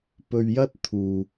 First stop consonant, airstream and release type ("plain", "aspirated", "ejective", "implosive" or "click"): plain